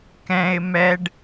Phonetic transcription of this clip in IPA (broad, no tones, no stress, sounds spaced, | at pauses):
k ɛ̃ ɪ̯ m ɛ ɖ